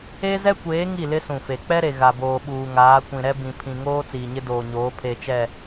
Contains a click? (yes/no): no